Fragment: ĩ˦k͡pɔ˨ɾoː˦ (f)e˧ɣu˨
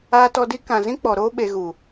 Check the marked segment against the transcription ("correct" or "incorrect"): incorrect